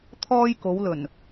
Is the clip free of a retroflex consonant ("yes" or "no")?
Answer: yes